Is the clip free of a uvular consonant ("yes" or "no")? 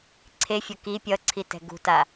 yes